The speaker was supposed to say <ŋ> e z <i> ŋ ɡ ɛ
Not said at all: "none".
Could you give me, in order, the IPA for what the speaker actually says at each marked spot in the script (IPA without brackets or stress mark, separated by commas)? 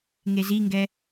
ŋ, i